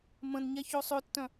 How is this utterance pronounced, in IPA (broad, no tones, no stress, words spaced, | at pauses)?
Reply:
mə̃nɲɛ çosˤøtːœ̃